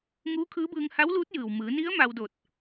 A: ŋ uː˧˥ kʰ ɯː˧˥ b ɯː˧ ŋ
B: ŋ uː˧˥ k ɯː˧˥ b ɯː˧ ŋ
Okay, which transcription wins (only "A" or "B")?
A